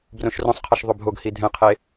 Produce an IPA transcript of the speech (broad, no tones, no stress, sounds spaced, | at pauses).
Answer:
b r õ ʃ r õ sˤ qʰ ɛ ʃ ðˤ o bʱ o ɡ h i dʱ ɛ̃ qʰ e